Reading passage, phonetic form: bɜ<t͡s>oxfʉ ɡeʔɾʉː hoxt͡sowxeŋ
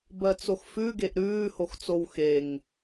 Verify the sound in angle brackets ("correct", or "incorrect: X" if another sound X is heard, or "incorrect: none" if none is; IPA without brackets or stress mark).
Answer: correct